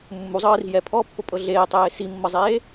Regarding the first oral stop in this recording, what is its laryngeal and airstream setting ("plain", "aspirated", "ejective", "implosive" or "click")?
aspirated